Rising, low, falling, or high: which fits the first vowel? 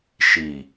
low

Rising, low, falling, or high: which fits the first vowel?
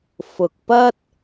low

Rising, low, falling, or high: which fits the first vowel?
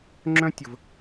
high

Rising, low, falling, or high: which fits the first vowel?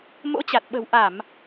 rising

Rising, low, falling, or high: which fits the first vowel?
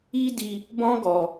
high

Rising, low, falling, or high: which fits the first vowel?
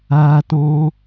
high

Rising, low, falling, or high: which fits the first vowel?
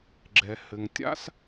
low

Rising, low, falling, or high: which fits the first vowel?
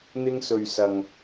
high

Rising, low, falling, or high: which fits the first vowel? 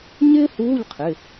high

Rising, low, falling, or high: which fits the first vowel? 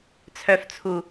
low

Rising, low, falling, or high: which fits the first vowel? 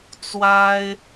high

